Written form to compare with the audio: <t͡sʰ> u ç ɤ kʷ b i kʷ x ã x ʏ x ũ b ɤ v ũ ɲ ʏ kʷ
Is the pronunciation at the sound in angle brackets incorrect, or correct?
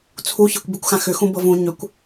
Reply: correct